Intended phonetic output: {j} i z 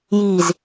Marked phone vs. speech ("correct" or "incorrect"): correct